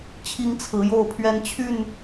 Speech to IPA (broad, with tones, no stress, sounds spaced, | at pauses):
t͡ɕʰ i˦ ŋ t͡sʰ ɹ̩˨˦ j o˥˨ ʊ̯ pʰ ɥ ɛ˦ n t͡ɕʰ y˥˨ n